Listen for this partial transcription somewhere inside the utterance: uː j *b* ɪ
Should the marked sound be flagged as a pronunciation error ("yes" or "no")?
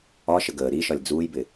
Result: no